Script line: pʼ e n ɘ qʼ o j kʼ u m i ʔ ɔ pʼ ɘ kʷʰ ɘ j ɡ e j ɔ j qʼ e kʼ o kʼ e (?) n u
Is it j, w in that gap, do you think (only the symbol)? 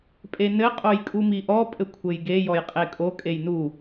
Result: j